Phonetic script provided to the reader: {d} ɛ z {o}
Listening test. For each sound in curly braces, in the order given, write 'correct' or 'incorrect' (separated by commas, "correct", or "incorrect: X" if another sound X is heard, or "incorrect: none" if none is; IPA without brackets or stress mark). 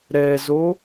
incorrect: ɾ, correct